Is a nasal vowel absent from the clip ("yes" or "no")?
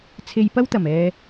yes